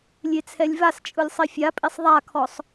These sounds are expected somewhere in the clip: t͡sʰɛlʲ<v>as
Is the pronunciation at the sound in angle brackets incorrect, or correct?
correct